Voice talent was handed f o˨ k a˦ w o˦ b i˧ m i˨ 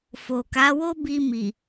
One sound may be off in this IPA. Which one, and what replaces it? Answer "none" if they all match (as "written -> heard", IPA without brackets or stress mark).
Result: a˦ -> a˨˦